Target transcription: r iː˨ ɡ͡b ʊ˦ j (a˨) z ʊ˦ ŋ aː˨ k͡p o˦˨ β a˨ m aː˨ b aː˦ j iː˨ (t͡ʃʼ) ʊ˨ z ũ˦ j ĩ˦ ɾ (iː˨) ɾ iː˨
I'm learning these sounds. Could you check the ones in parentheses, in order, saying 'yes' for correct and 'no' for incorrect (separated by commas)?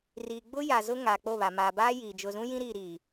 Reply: yes, no, yes